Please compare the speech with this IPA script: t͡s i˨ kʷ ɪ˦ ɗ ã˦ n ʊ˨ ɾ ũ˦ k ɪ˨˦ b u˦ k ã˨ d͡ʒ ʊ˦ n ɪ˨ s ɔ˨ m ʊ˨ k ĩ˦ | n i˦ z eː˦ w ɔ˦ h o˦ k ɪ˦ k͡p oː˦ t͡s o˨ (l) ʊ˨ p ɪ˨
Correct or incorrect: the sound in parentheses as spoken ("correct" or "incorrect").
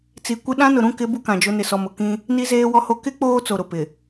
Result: incorrect